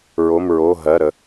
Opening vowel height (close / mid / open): mid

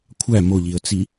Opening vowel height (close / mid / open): open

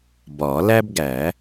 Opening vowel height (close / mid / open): open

